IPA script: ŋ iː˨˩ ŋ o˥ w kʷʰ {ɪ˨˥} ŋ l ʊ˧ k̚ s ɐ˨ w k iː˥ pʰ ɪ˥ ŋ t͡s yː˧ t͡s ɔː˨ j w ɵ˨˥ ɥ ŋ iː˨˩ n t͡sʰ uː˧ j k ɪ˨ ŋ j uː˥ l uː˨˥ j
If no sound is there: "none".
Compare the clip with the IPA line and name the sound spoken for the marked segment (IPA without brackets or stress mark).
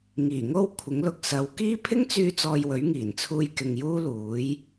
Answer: ɪ˨˥